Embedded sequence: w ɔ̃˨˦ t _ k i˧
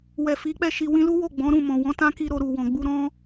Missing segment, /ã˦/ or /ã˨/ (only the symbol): ã˦